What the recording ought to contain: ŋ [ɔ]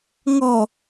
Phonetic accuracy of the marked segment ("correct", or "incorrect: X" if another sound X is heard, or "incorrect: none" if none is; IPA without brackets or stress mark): correct